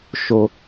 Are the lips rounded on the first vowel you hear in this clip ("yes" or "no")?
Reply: yes